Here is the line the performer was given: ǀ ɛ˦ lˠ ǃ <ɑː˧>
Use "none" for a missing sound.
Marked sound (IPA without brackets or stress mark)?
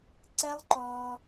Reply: ɔː˧